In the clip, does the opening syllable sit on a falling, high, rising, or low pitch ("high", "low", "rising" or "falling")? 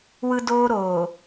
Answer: high